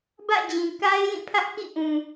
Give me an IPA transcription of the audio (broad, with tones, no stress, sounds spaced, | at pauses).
b ä̰˦˨ d͡ʑ ĩ˨ k a˦ ɪ̯ j ĩ˦˨ pʰ ä˦ ʔ k ḭ˦˨ ʔ ũ˨